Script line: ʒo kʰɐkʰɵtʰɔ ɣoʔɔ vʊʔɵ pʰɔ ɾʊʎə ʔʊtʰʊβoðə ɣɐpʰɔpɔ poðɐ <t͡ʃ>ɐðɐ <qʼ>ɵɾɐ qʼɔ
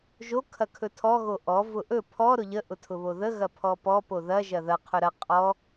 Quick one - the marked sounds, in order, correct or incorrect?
incorrect, incorrect

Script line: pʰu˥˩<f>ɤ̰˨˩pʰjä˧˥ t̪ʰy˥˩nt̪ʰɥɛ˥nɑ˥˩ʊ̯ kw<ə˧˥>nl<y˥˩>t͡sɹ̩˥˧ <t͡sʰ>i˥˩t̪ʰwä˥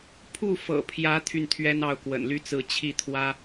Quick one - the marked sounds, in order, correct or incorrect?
correct, incorrect, incorrect, incorrect

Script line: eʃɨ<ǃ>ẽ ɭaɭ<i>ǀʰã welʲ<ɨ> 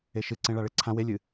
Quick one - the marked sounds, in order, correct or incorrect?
incorrect, incorrect, correct

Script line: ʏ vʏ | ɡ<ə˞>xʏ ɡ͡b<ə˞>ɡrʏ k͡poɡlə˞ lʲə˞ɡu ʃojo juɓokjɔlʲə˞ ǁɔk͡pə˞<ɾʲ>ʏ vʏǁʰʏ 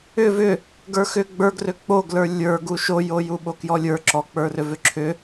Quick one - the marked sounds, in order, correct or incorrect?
correct, correct, incorrect

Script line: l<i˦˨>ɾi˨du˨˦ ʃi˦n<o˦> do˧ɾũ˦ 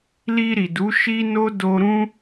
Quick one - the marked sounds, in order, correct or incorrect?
incorrect, correct

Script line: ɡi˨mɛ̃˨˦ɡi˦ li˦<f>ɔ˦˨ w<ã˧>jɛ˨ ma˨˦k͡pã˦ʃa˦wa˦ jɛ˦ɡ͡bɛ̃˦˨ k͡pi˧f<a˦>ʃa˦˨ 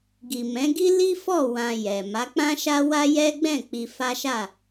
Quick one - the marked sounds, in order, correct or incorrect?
correct, correct, correct

